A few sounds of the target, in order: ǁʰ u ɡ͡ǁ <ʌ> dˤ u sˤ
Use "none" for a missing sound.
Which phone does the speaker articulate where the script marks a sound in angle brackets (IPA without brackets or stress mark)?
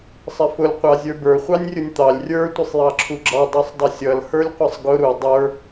ɑ